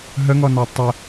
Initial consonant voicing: voiced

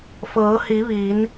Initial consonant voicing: voiceless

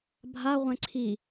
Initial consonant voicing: voiced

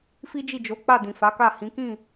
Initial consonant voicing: voiceless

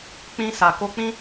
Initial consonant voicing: voiceless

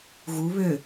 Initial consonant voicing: voiced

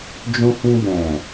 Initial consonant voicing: voiced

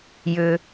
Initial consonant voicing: voiced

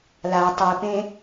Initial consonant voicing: voiced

